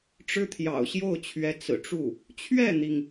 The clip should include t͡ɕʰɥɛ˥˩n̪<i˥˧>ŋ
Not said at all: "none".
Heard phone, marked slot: i˩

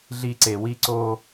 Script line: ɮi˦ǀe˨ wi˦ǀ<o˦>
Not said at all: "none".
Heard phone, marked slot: o˦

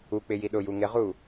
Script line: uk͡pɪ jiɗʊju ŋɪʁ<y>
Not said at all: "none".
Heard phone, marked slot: u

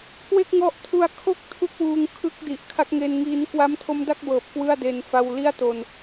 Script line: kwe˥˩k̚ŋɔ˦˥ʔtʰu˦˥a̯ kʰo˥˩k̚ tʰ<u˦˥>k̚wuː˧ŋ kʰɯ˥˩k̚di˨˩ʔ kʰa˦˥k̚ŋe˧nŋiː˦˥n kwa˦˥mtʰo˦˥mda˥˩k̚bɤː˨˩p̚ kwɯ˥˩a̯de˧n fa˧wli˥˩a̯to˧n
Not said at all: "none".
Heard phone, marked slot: u˦˥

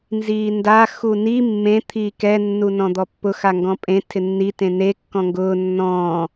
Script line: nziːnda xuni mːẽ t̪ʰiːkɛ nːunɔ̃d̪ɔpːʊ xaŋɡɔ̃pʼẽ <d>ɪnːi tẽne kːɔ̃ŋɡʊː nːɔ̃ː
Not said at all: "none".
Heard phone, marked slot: tʰ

